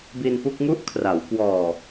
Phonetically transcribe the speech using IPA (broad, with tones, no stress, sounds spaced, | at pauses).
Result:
b i˧ n p u˥˩ k̚ ŋ u˦˥ ʔ kʰ r a˩˦ w k w ɔː˨˩